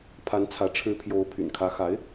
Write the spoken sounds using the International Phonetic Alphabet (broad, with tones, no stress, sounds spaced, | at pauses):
pʰ a˧˥ n t͡sʰ ä˧˥ ʈ͡ʂʰ ɻ̩˧˥ pʰ j o˧˥ ʊ̯ pʰ y̰˨˩ n kʰ ä˧˥ x a˧˥ ɪ̯